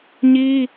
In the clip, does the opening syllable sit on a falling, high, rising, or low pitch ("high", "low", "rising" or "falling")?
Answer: high